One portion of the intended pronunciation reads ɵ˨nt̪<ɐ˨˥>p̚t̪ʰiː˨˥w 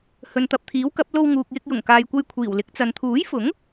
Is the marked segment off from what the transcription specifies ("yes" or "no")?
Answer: yes